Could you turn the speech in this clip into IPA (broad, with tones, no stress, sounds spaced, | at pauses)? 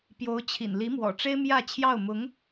p j o˧˥ ʊ̯ t͡ɕʰ ḭ˨˩ n l i˧˥ m w ɔ̰˨˩ ʈ͡ʂ e˥ ɪ̯ m j ä˥˧ t͡ɕʰ j ɑ˥˩ ʊ̯ m ʊ˧˥ ŋ